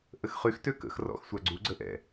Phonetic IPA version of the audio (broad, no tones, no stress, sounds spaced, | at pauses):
ʔ ə x χ y x t ø k ə̰ x r ɔ̰ x sʷ a ɡ͡ǀ u ɡ͡ǀ ə ʔ ɛ̰